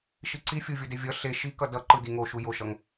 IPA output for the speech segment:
ʃ i ǀ i fʲ u vʲ o d e vʲ ʌ ɬ e ʃ i k ʌ d ʌ ǃ ɯ d i ŋ o ʃ u j o ʃ ʌ ŋ

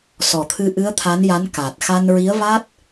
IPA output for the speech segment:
s ɔ˨˩ t̪ʰ ɨ˧ ʔ ɨ˧˥ ə̯ t̪ʰ a˧˥ n j a˧˥ n k a˨˩ t̚ x a˧ n ɹ i˧˥ ə̯ v a˦˥ t̚

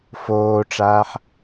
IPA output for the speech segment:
f oː ʈ͡ʂ aː ħ

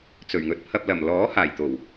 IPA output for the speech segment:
t͡s ɵ˨˩ ɥ ŋ ɵ˨ t̚ pʰ ɐ˧ p̚ l ɐ˨˩ m l ɔː˨˥ h aː˨˩ j t̪ o˨˩ w

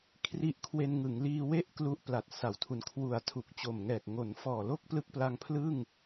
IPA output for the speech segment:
kʰ r i˦˥ ʔ kʰ w e˧ n ŋ ɯ˩˦ ŋ l iː˧ w e˥˩ ʔ k l u˦˥ ʔ p l a˨˩ t̚ s a˩˦ w tʰ u˨˩ n kʰ w u˨˩ a̯ tʰ u˨˩ k̚ t͡ɕ o˨˩ m ŋ ɛː˨˩ k̚ ŋ o˩˦ n f ɔː˨˩ l o˥˩ k̚ p l ɯ˦˥ k̚ p l a˧ ŋ pʰ l ɯ˥˩ ŋ

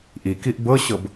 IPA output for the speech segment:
ʔ i k i ʔ b ɤ ɕ ɤ b

